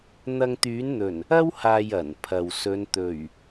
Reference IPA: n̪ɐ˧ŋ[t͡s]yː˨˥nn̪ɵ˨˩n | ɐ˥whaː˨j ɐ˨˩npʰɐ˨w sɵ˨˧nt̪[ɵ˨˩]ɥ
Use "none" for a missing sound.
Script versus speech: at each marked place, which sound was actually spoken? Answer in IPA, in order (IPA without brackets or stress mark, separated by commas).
t̪, ɵ˨˩